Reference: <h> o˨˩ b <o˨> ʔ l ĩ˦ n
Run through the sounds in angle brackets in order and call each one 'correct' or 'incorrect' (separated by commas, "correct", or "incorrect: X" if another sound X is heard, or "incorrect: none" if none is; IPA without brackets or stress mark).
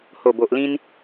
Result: correct, correct